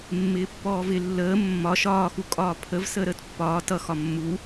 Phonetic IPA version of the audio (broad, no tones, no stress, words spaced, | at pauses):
mːɪːpːɔːvɪ lːəː mːɒ ʃɒːxukʼɒː pʰəv səːɾəːtpːɒː tʌ xɒmːu